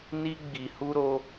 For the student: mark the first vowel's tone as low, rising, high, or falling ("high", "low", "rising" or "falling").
high